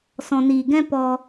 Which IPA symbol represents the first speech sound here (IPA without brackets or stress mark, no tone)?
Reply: s